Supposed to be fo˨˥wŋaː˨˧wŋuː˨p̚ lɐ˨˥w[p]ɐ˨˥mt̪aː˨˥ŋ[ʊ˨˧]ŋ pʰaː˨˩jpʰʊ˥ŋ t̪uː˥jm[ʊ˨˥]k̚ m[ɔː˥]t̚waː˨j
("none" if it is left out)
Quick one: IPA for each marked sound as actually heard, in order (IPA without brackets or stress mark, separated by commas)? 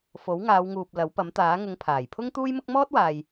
p, ʊ˨˧, ʊ˥, ɔː˥